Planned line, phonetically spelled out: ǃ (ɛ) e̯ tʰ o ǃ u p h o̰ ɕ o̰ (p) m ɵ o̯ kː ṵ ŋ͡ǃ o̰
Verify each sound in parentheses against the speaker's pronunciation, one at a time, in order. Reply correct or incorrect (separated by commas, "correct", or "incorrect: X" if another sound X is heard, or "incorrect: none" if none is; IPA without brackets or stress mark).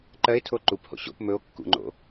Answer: incorrect: ɜ, correct